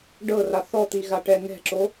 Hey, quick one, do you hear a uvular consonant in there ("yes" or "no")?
no